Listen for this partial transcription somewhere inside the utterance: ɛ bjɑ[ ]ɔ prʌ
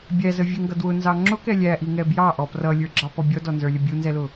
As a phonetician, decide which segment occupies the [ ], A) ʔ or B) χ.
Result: A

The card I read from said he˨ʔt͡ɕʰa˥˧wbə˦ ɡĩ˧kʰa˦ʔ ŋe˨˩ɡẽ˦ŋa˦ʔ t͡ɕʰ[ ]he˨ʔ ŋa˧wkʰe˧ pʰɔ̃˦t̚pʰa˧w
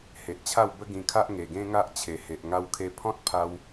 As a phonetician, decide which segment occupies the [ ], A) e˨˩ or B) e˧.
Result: A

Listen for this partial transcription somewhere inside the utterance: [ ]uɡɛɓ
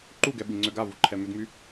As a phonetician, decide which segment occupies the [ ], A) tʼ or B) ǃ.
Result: B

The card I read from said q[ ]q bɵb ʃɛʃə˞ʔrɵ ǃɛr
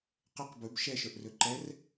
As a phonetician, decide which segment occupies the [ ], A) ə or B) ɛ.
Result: A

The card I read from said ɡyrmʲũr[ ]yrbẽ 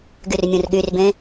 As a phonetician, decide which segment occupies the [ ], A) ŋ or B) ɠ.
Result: B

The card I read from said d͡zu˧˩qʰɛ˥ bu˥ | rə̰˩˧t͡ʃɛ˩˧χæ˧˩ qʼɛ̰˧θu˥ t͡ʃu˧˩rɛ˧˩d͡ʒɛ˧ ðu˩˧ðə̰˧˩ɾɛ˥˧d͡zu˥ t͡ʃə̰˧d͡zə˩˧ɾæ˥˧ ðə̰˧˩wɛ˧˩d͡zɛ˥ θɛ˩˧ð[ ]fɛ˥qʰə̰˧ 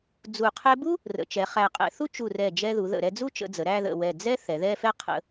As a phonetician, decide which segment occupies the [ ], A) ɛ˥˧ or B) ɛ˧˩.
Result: A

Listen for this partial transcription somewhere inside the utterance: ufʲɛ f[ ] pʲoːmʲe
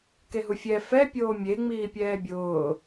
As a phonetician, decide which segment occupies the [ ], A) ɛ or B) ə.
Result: A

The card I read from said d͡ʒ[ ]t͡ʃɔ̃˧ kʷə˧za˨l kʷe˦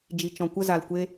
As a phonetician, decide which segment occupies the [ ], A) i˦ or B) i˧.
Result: B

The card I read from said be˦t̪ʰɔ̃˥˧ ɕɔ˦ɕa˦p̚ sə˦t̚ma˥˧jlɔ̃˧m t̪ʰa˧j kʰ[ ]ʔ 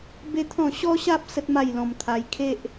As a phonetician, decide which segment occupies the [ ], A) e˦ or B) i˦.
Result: A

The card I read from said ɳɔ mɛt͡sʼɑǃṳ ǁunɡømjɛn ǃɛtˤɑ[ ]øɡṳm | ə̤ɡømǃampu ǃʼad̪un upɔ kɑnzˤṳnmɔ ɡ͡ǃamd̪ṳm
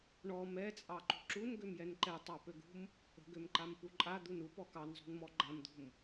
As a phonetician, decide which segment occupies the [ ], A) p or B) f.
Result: A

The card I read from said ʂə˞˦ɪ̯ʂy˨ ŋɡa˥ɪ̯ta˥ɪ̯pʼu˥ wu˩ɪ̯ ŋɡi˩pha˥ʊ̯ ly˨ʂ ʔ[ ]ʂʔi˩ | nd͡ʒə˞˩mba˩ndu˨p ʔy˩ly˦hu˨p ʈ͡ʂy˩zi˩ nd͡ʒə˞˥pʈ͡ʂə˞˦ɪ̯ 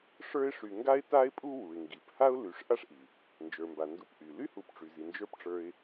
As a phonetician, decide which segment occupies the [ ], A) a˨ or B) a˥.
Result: B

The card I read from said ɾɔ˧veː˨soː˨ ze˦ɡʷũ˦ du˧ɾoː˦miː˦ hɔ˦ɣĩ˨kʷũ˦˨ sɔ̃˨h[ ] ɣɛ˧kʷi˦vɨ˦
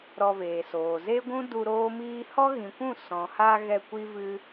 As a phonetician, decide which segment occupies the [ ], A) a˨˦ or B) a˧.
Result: B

